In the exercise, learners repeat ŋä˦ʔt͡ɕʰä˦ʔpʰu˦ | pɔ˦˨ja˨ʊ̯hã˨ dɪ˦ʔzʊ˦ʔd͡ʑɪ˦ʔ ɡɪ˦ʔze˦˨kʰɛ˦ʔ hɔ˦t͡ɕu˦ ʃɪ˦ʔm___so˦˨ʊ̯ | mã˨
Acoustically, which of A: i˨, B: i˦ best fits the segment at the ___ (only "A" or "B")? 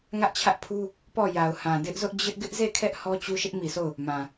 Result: A